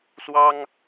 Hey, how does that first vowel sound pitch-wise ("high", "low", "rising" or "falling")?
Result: high